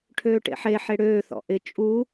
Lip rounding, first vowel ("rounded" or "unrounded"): rounded